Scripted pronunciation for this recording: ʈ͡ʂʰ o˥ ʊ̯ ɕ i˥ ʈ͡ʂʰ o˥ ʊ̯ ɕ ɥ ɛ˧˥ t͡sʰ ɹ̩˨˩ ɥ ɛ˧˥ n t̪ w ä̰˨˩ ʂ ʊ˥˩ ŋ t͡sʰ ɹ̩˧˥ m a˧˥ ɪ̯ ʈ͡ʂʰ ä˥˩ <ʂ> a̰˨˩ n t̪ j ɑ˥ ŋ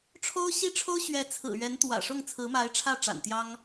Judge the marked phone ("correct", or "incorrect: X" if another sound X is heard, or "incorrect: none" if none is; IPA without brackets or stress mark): incorrect: ʈ͡ʂ